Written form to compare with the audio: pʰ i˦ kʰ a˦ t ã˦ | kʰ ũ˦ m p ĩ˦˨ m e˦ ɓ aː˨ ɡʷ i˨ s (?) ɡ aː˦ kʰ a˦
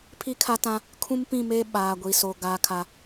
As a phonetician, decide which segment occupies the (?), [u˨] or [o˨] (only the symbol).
o˨